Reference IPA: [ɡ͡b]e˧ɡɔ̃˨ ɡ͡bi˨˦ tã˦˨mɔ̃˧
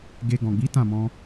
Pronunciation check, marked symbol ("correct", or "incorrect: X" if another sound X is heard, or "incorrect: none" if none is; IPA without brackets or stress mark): incorrect: ɡ